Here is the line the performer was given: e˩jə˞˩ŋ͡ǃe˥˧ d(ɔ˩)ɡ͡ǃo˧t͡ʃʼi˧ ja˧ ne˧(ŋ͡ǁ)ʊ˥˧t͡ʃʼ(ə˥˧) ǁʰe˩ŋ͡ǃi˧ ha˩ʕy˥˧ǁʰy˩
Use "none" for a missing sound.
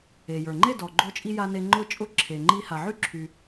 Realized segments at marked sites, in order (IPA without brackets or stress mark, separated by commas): ɔ˩, ŋ͡ǃ, ʊ˥˧